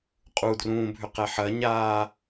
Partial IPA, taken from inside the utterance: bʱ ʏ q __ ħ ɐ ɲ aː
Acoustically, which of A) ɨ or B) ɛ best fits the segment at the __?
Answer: B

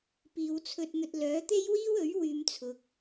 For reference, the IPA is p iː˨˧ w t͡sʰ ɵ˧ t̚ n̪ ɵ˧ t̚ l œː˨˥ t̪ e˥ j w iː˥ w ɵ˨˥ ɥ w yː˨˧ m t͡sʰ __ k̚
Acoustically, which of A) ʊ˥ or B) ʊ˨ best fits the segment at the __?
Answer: B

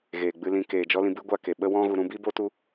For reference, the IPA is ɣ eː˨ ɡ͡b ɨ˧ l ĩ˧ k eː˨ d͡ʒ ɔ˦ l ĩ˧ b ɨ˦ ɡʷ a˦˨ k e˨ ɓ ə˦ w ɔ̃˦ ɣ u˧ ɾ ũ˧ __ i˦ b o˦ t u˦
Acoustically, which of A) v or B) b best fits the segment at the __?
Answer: B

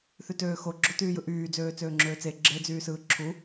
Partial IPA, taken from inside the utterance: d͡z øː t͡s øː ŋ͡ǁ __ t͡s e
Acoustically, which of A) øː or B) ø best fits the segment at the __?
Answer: A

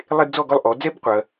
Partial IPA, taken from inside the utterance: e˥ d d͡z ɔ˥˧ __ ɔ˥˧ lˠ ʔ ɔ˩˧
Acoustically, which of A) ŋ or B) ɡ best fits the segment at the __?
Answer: B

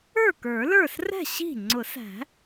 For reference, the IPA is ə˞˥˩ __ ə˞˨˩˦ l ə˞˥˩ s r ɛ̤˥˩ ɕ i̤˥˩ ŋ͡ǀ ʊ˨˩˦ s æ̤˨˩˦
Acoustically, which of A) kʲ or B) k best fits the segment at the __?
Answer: B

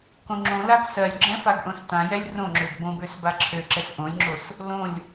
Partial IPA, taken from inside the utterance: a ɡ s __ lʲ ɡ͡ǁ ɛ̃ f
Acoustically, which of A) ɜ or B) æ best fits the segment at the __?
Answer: A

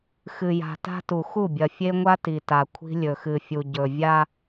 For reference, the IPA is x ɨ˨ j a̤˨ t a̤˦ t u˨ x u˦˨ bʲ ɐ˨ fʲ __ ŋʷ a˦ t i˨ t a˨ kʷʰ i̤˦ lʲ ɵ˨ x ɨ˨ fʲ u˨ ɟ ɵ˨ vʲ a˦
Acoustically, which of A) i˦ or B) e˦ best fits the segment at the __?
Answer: B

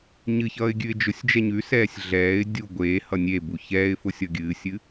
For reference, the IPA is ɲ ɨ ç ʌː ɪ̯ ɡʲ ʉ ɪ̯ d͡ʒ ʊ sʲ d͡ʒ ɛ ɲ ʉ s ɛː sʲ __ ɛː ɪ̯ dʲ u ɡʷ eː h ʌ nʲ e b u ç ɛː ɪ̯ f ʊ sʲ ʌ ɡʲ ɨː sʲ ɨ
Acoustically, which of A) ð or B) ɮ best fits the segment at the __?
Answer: B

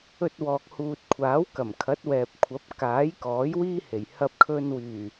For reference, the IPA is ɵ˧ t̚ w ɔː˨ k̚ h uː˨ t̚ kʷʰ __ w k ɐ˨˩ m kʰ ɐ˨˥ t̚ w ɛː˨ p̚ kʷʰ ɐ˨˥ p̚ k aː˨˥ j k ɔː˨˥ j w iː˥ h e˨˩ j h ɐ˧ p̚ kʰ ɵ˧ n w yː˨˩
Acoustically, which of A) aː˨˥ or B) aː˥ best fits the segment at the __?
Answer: A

